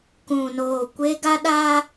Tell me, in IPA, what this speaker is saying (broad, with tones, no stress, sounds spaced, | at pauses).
k ũ˨ n oː˨ kʷ e˦ ɡ a˦ ɗ a˦